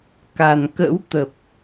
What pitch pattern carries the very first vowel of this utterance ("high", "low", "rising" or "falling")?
low